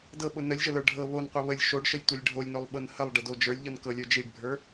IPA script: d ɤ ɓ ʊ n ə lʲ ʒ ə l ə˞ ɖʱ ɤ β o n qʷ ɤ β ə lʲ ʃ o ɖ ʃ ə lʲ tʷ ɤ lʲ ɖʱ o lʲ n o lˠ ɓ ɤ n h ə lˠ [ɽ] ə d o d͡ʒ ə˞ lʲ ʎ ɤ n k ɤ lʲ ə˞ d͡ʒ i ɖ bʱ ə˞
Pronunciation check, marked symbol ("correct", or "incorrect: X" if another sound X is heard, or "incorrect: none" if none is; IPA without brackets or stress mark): incorrect: ɖ